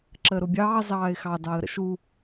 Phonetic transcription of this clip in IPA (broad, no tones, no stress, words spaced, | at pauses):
ǁəːɾʊbʲɑː zɑːɪ̯xɑ dɑːə̯ɾə̰ʃu